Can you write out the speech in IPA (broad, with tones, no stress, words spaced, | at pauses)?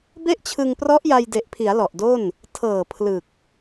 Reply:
be˥˩ʔt͡ɕʰɯ˧ŋprɔ˦˥ʔ ja˧jde˨˩ʔpʰi˩˦a̯ lɔ˨˩ʔdo˥˩n | tʰɤː˨˩ pʰlɯ˨˩k̚